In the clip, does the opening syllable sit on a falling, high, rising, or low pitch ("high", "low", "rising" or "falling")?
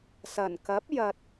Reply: low